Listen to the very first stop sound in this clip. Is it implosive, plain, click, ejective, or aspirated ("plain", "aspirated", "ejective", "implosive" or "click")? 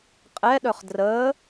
ejective